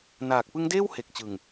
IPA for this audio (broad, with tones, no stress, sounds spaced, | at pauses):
n aː˨˩ k̚ p ɯ˦˥ ŋ d eː˥˩ w h e˨˩ k̚ t͡ɕ ɯ˨˩ ŋ